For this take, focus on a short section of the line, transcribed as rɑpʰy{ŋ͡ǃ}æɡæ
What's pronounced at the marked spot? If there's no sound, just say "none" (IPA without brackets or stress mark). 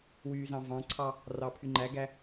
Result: ŋ͡ǃ